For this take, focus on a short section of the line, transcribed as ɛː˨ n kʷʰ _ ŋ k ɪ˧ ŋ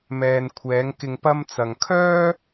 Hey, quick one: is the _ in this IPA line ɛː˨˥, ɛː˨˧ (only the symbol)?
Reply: ɛː˨˧